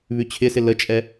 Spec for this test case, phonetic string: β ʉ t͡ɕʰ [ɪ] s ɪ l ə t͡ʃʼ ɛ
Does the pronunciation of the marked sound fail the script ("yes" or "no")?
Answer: no